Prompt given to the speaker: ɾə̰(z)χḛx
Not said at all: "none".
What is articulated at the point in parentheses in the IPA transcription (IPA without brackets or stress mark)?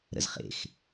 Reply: z